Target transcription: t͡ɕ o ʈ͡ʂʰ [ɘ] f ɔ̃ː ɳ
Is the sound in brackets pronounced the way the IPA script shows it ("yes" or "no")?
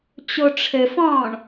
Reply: yes